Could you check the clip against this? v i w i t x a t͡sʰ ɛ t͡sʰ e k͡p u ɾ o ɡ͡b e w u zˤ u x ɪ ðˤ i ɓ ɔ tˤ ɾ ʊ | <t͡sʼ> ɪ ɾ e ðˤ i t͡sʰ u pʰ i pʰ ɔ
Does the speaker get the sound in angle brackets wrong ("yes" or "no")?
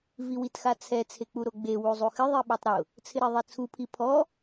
yes